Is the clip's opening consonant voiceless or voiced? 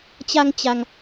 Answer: voiceless